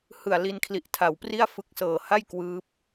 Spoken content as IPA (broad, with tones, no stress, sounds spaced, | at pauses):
h ɯ˨˩ a̯ l i˧ n kʰ l i˨˩ ʔ tʰ a˨˩ w p r i˥˩ a̯ f ɯ˦˥ k̚ s ɤː˨˩ h a˥˩ j k w ɯː˦˥ p̚